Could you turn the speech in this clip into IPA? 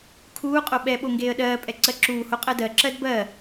kʰ uː qʼ o ɓ ɛ ɓ o ŋ ɡ eː ə̯ ɗ ɜː pʼ ɛ ǀ ɜ ǁ uː h o qʼ ɜ d ɜ ǁ ɜ d b ɜ

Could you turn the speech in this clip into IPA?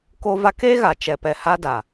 k o˦ v a˦ k eː˦ ɣ a˨ t͡ʃ ɛ˨ p ɛ˨ h a˦ d a˨

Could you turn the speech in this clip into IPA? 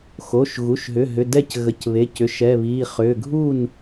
x o˩˧˩ ʃ ɣ u˩˧˩ ʃ ɦ ʏ˩˧˩ ɦ ʏ˩˧˩ d ɛ˥˩ c ɣ ə˩˧˩ c β e˩˧˩ c ʏ˩˧˩ ʃ ɛ˩˧˩ β i˩˧˩ χ ʏ˩˧˩ ɡʱ u˥˩ n

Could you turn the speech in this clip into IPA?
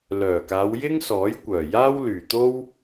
l œː˨˩ k aː˨˧ w j ɪ˥ ŋ s ɔː˨˥ j kʷ œː˨˩ j aː˥ w l yː˨˩ t̪ o˥ w

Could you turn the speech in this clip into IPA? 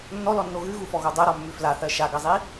nː ɔ l ɔ nː o ɣ ʉ ɣ u f ɔ ɣ o dˤ ɜ ɾ ɔ mː ʉ f l a θ ɜ ʃ a ɡ ɜ zˤ i

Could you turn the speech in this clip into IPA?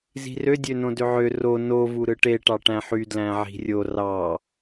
z i̤ r ø dʲ ø n õ d ø ʕ ø r o n o v u ɾ ɯ ʈ e ʈ ɑ ʈ æ̃ ħ y d l æ̃ ʕ i̤ rʲ o r ɑ

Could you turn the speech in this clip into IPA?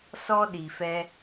s ɔ˦ ɗ i˨ f ɛ˧

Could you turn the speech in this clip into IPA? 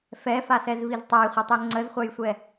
f ɛ f a s ɛ z v i z tˤ a j χʷ ɛ tˤ ɛ ŋ͡ǀ ə z χʷ a j sʷ ɛ

